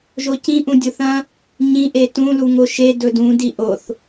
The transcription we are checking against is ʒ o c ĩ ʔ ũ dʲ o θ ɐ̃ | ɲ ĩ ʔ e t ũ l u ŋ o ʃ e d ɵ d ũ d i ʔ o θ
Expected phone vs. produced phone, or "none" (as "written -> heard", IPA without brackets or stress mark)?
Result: none